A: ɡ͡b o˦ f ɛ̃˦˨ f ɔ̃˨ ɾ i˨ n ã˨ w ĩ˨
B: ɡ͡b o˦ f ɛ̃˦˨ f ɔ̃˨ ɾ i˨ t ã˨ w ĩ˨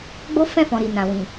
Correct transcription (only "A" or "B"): A